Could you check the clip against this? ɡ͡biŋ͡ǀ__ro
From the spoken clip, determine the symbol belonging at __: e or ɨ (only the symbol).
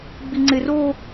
e